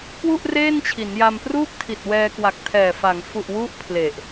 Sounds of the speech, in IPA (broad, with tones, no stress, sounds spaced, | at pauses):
k w u˥˩ ʔ r eː˥˩ n t͡ɕʰ i˩˦ n j a˧ m p r uː˥˩ k̚ tʰ i˨˩ t̚ w ɛː˧ k w a˨˩ k̚ tʰ ɛː˨˩ f a˩˦ ŋ f u˨˩ ʔ w u˥˩ ʔ pʰ l e˨˩ ʔ